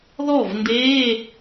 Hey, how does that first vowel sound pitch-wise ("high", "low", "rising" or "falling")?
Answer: falling